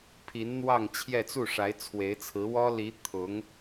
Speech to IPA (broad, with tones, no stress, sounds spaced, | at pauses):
pʰ i˧˥ n n̪ w ɑ˥˧ ŋ t͡ɕʰ j ɛ˥˧ t͡s u˥˩ ʂ a˧˥ ɪ̯ t͡sʰ w e˧˥ ɪ̯ t͡sʰ ɹ̩˧˥ w ɔ˥ l i˧˥ t̪ʰ ʊ˧˥ ŋ